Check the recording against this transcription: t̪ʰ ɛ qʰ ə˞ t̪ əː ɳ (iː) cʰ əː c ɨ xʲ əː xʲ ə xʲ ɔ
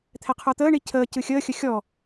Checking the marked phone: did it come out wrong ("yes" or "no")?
yes